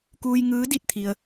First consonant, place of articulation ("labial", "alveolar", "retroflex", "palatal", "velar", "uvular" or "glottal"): velar